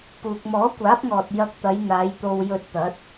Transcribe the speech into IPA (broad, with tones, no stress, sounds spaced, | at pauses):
p uː˨ k̚ m ɔː˨˥ kʷ aː˨˥ p̚ ŋ ɔː˨ t̚ j ɐ˧ k̚ t̪ ɐ˨˧ j n̪ aː˨˧ j t̪ o˧ w j ɵ˧ t̚ t̪ ɐ˨˥ t̚